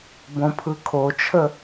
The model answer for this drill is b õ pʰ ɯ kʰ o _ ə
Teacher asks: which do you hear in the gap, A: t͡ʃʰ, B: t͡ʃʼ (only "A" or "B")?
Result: A